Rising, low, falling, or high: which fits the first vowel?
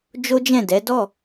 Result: high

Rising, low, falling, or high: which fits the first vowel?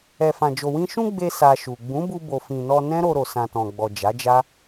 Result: low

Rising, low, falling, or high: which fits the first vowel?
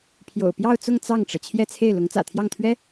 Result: low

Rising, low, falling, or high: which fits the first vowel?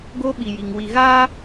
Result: high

